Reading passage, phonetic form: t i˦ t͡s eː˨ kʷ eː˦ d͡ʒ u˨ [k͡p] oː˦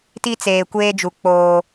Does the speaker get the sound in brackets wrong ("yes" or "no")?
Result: no